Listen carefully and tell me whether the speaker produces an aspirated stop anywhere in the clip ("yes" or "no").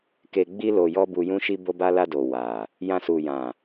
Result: no